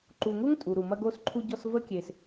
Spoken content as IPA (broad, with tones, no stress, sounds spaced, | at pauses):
ǃ u˨ ŋ u˦ ŋ tʼ u˨ ɾ u˨ m ɐ˧ ɡ o˧ s ǃʰ u˧ ɟ ɔ˧ s v ə˦ kʲ e˨ s